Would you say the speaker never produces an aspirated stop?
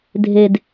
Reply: yes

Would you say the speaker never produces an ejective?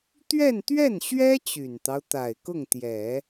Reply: yes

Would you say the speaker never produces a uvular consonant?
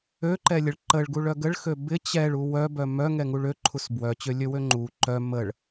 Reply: yes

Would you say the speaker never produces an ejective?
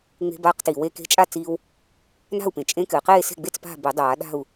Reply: no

